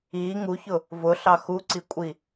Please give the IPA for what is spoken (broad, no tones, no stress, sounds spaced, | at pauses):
i ŋ u ç ʊ | v ʊ ɬ ɑ x u ǀ i kʷʼ i